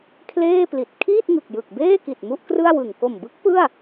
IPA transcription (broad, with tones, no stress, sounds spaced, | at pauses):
kʰ l eː˥˩ p l i˨˩ t̚ kʰ iː˥˩ t̚ ŋ ɯ˨˩ k̚ j ɯ˨˩ k̚ b eː˥˩ k i˨˩ t̚ m u˥˩ ʔ k r ɯ˥˩ a̯ w ɯ˨˩ ŋ k o˨˩ m b ɯ˦˥ k̚ p ɯ˥˩ a̯